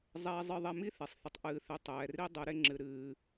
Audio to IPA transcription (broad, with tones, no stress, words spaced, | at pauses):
zˤɛː˧zˤɨ˧ ðˤɛ˧mi˦θe˨sˤ θə˧tˤʔɨː˧θe˧ tˤɛː˨ri˦ dˤɨ˨˦ɾe˦ŋ͡ǁɨ˧ ɾɨː˦